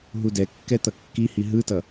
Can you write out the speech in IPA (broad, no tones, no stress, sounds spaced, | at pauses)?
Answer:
ɦ u d ɛ kː ɛ t̪ ʌ kː i h i ɦ ɯ t ʌ